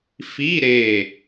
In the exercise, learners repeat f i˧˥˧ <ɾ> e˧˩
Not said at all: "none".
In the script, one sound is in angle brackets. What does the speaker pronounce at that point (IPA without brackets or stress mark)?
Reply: ɾ